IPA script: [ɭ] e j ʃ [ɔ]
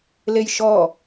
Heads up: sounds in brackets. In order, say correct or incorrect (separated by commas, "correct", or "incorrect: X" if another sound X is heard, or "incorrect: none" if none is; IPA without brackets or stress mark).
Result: incorrect: l, correct